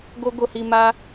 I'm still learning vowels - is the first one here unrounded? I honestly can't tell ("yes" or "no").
no